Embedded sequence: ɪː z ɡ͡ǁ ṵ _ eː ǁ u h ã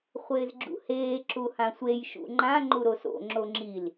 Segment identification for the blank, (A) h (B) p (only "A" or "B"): A